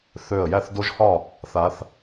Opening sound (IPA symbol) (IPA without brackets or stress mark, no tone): θ